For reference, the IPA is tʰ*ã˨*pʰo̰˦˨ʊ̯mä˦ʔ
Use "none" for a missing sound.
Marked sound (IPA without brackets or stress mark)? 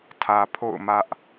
ä˨